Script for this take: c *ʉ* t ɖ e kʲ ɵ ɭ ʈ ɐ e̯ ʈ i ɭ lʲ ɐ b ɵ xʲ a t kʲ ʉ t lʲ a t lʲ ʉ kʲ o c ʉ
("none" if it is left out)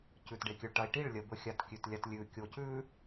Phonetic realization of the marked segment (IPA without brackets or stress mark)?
ʉ